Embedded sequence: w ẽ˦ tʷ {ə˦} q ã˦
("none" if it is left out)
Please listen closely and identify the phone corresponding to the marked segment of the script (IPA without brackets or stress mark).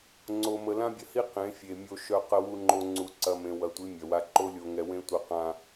ə˦